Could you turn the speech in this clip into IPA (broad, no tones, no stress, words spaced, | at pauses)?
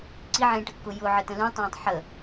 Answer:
ǀiʕẽːʈəkːʊ jʊʕətə̃ lũtˤẽːtˤ ħə